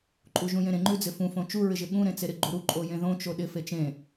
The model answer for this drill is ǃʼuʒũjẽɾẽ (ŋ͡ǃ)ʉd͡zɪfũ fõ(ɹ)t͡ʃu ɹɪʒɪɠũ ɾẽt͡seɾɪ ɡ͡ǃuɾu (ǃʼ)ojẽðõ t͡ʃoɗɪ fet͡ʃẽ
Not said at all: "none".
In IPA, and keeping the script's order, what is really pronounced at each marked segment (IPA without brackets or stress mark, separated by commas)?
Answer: ŋ͡ǃ, none, ǃʼ